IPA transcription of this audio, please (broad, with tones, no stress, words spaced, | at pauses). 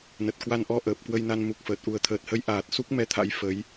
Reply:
nə˨˩t̚ kwa˧nʔɔ˧ ʔəː˨˩p̚kwə˧jna˧n mu˨˩k̚fəː˨˩t̚ ʔu˨˩ə̯t̪ʰəː˨˩t̚hə˨˦jʔaː˨˩t̚ su˦˥k̚mɛ˧t̪ʰa̰˧˥j fə˨˦j